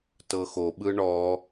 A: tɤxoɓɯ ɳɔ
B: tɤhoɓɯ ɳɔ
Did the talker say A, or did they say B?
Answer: A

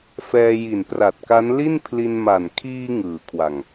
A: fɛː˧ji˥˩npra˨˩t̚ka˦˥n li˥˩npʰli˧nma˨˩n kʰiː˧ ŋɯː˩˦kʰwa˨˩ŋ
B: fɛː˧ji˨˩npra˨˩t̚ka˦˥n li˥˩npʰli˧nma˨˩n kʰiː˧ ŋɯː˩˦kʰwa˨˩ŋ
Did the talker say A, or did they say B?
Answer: B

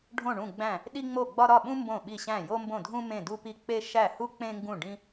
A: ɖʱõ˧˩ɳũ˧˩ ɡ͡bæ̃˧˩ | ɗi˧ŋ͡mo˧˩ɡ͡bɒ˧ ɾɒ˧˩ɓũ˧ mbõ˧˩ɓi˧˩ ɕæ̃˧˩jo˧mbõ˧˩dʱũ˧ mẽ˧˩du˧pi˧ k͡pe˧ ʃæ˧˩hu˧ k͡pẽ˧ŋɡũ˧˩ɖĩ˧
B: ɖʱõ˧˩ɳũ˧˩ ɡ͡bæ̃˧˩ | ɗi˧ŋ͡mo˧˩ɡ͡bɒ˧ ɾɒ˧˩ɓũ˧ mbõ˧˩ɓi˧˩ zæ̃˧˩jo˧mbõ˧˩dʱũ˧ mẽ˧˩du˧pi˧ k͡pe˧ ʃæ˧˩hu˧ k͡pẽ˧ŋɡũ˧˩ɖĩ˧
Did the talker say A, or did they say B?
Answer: A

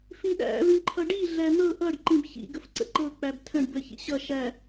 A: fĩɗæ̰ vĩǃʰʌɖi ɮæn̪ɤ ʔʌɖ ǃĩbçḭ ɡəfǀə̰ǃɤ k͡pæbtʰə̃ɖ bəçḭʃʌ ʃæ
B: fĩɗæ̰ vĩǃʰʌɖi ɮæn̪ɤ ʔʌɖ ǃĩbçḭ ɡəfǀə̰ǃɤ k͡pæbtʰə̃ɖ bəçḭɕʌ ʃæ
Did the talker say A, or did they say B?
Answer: B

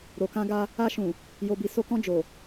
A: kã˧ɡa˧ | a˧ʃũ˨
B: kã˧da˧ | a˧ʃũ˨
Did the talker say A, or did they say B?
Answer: A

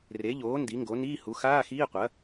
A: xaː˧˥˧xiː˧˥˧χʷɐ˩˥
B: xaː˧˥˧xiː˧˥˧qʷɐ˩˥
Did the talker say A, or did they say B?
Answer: B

